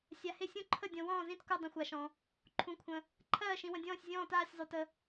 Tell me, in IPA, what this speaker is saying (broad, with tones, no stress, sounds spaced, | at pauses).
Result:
sʲ a˨ h ɪ˥˩ sʲ ũ˥˩ ǃʰ ə˥˩ dʲ ɔ̃˨ w ɔ̃ː˥˩ z ĩ˥˩ t k u˥˩ dˤ ə̃˥˩ xʷ a˨ ʃ ɔ̃˨ | ǃʰ ũ˨ kʷʰ ə̃˨ | ǃʰ ɜː˥˩ ʃ ĩ˨ w ə̃˨ dʲ ɔ̃ː˥˩ sʲ zʲ ɔ̃ː˥˩ t aː˥˩ sʲ zˤ u˨ t ə˨